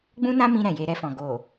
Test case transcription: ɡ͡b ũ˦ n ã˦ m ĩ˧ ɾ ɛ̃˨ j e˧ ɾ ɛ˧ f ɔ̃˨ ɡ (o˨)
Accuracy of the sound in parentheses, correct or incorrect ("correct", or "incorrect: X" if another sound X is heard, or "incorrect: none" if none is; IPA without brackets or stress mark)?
correct